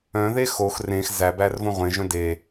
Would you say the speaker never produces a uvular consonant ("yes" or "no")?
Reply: no